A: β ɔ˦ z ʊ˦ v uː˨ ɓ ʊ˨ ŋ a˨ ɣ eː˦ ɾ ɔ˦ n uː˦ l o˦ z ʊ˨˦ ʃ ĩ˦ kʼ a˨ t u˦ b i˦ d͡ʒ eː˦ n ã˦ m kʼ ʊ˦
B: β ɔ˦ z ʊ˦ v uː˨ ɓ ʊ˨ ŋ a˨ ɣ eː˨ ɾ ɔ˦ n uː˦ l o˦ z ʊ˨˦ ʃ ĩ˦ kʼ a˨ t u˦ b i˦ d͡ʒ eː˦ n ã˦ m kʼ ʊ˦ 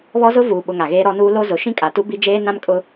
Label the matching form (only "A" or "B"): A